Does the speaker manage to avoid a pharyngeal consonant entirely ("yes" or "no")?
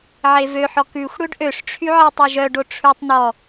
no